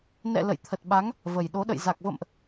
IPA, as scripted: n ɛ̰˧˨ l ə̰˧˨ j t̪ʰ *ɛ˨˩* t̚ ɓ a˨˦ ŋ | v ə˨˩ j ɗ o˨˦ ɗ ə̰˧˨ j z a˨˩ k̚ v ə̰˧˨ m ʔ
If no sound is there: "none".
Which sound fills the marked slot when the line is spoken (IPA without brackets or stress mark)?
ə˨˩